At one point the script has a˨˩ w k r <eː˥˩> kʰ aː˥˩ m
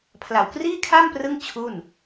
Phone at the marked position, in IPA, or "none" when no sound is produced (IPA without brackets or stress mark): iː˥˩